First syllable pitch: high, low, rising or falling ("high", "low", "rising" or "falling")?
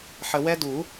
low